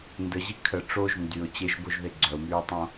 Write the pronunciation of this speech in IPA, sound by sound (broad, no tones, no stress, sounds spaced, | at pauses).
n d ə ʑ i kʰ ə ʈ͡ʂ o ʒ n d y ʊ̯ t͡ɕ e ʒ b o ʒ ð e ɡ͡ǀ œ ʊ̯ m yː tˤ õ